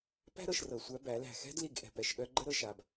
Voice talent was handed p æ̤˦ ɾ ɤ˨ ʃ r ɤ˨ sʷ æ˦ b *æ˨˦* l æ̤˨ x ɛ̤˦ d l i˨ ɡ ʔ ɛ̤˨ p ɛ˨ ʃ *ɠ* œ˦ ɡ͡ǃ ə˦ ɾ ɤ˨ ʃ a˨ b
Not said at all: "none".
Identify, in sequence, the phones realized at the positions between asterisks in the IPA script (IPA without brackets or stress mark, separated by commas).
æ˨˦, ɠ